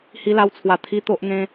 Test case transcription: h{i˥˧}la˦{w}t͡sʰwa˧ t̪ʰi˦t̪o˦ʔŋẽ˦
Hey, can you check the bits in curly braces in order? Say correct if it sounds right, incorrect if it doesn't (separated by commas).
incorrect, correct